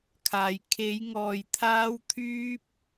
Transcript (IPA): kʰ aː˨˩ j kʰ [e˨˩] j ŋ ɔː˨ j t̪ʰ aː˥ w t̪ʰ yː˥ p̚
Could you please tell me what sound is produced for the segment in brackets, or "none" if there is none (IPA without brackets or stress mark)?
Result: e˨˥